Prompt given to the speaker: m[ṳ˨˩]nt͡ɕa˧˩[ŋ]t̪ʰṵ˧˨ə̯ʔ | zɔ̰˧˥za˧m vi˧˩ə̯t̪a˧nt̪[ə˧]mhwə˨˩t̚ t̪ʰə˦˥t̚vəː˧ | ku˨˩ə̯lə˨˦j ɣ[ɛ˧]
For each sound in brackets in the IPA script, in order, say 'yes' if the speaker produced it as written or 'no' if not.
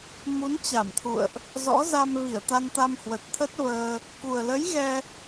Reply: no, no, no, yes

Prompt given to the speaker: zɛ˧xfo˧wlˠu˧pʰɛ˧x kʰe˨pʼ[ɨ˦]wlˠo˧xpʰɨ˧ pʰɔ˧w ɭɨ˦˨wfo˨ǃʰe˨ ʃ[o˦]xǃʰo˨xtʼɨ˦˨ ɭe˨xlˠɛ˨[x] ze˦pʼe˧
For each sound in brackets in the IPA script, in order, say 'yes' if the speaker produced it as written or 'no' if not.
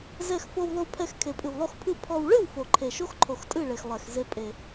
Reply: no, yes, yes

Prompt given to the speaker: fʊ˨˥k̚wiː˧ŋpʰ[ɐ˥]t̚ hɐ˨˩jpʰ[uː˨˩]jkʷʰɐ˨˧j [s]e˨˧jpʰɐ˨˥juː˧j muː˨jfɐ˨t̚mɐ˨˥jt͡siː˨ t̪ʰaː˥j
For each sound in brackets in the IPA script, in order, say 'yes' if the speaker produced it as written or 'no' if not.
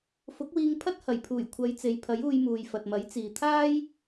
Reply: yes, yes, no

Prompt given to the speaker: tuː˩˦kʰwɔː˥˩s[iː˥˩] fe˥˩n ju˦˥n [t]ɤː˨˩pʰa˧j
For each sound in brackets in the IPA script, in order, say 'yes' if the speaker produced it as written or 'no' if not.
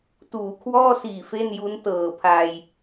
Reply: no, yes

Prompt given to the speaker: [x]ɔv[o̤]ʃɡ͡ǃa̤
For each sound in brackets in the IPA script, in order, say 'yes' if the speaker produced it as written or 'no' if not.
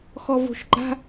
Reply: yes, yes

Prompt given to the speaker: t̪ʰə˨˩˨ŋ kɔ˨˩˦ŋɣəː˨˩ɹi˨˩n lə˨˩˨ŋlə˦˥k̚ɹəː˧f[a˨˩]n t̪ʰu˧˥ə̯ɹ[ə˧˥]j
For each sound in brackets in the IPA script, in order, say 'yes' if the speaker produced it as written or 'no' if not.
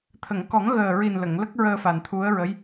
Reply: yes, yes

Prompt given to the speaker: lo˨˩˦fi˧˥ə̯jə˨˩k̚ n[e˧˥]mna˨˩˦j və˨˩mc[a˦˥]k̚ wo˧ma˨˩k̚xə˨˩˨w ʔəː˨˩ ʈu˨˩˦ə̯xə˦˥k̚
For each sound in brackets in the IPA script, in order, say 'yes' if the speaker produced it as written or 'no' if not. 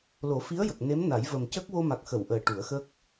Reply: yes, no

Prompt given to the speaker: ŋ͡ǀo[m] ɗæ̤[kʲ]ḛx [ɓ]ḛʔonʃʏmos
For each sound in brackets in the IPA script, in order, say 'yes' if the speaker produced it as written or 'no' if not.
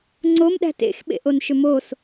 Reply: yes, no, yes

